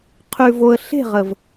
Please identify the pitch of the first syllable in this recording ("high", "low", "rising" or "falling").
low